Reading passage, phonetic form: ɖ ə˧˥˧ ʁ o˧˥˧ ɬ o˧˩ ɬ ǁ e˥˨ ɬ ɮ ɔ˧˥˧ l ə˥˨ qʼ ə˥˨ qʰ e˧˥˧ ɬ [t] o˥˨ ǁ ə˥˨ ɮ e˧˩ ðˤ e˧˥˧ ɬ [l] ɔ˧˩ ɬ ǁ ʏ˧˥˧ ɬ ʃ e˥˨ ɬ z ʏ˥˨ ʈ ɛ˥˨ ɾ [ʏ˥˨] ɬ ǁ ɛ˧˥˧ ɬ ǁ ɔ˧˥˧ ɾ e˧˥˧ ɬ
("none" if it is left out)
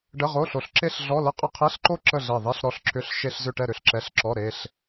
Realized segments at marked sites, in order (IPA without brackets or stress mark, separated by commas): ǃ, ɾ, ʏ˥˨